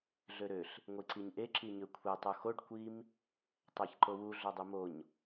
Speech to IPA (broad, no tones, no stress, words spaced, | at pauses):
ɮøɾøɬ | ŋʷiǀiɲʔe ǁiɲøkʷʰe tˤuxoɖ kʷim | tˤæçǃowu ɮodˤimoɲ